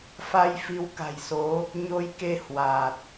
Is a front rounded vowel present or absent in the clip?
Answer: absent